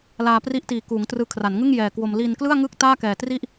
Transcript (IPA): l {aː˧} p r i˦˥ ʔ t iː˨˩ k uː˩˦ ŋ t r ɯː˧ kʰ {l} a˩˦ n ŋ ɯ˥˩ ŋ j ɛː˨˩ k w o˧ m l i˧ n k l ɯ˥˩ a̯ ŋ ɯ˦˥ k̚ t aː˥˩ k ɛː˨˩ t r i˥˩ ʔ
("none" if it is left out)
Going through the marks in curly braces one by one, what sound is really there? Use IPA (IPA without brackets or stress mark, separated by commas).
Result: aː˧, r